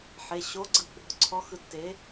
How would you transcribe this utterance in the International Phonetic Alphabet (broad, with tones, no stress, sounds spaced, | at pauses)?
ħ e˩˧˩ ɕ o˨˥ ɡ͡ǀ ɯ˨˥ ɡ͡b ɔ̤˩˧˩ ǀʰ ɔ˨˥ x ɯ˨˥ tː e˨˥